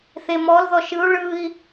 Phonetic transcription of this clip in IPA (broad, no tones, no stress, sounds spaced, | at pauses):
θ e m ɔ l ð ɔ ʃ ɯ u̯ ɭ ɯ i̯